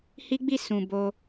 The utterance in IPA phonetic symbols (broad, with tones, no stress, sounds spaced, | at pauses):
h i˦ ɡ͡b i˦˨ s ũ˨ b o˧